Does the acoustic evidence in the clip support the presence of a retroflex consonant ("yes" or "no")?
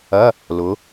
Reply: no